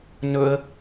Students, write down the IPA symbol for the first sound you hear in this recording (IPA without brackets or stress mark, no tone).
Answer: n